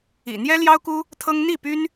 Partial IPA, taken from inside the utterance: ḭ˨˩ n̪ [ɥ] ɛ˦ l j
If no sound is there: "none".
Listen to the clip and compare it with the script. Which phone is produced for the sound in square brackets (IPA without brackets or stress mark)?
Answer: j